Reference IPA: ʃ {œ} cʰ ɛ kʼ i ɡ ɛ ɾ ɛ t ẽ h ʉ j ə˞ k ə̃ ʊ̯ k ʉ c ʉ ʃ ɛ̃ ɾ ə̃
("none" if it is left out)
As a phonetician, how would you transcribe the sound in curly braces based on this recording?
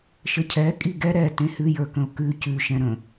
ə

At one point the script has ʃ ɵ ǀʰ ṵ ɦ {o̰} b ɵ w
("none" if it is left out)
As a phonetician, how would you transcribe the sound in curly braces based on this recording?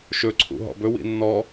ɔ̰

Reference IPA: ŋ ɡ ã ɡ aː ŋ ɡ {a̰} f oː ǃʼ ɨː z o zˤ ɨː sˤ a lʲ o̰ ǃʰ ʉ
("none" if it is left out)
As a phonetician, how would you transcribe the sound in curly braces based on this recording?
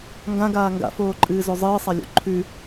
a̰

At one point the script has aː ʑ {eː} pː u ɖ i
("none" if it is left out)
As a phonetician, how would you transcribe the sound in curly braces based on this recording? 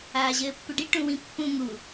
ɘː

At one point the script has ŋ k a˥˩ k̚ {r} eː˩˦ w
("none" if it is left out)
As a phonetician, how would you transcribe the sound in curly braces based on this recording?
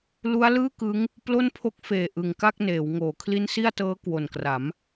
n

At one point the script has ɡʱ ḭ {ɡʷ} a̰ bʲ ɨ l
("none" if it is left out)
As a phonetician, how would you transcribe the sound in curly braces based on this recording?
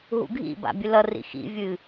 b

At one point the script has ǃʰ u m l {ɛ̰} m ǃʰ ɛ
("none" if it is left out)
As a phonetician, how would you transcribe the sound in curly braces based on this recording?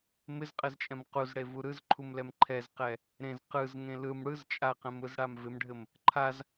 ɛ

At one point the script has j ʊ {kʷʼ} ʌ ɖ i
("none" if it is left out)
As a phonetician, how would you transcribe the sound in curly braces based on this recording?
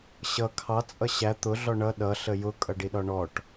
kʼ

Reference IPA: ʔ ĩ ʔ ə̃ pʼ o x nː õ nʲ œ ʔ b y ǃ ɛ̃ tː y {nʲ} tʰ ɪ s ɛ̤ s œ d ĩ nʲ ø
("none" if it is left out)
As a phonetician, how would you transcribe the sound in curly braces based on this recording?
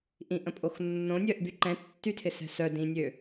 none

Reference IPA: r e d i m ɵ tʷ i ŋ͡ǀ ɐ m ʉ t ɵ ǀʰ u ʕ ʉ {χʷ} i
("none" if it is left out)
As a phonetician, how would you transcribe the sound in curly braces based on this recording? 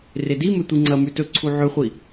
χʷ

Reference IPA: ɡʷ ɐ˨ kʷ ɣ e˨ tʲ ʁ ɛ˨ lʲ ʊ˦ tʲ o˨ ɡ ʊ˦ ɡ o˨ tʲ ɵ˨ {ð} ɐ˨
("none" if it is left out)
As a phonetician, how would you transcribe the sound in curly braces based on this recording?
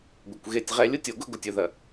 ð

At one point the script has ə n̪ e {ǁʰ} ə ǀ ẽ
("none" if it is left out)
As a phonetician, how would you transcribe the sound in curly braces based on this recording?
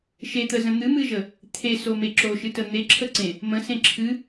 ǁʰ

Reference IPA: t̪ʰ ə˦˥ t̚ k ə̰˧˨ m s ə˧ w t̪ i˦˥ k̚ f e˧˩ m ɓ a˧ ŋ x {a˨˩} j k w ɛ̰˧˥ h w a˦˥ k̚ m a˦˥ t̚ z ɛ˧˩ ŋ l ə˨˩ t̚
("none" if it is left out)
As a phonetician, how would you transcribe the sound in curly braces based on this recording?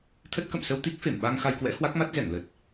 a˧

